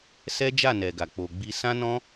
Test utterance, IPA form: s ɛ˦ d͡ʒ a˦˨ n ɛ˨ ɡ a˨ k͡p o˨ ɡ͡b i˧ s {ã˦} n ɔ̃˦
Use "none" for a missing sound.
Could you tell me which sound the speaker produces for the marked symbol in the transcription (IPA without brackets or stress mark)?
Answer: ã˦